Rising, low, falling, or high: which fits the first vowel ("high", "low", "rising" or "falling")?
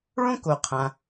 high